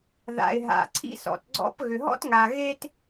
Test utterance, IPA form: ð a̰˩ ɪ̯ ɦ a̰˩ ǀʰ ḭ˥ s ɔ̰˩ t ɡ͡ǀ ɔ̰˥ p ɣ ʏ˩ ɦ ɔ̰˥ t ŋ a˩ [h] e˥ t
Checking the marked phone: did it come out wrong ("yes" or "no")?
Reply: yes